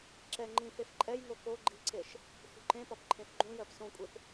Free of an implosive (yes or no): yes